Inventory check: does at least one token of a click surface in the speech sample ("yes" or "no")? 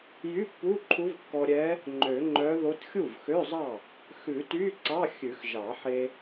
yes